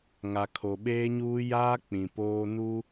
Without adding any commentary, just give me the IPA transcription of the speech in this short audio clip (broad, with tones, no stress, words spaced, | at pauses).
ŋa˨kʰo˨ɓeː˦ɲuː˦ jaː˦ k͡pĩ˨poː˦nu˦